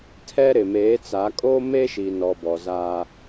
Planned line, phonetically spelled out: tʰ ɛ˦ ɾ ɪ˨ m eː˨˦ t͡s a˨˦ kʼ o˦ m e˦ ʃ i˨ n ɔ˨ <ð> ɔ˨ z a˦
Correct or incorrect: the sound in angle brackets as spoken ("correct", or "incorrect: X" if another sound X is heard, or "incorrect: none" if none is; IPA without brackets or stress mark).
incorrect: b